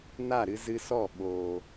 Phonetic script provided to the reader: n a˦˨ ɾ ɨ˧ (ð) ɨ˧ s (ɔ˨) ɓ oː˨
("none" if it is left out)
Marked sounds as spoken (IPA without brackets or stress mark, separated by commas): z, ɔ˦˨